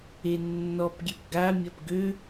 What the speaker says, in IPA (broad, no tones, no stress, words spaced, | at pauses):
enːɔpɡʲep ɡamʲɐp ɡø